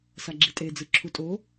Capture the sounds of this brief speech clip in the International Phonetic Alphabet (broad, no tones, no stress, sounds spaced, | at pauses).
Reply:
s a ɡ͡ǁ i tʼ e d͡z ɯ ǁʰ u tʼ o